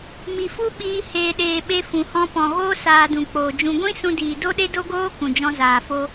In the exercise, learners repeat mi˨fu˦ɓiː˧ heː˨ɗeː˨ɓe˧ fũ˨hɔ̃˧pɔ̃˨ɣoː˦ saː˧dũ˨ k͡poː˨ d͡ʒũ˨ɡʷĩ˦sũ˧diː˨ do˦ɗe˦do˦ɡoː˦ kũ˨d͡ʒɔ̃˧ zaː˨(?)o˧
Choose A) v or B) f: B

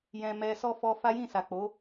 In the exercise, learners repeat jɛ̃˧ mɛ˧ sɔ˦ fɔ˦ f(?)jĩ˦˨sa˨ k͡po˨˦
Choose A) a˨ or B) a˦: B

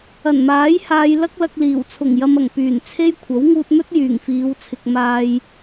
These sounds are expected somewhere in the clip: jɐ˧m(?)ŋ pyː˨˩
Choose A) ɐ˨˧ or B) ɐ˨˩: B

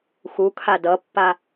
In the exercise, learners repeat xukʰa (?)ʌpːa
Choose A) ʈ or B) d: B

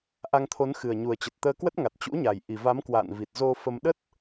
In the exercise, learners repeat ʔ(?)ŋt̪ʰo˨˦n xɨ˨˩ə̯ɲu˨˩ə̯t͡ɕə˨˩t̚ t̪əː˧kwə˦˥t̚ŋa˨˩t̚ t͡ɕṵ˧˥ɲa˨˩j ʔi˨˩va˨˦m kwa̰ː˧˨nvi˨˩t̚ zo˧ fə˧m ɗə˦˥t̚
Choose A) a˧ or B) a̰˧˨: A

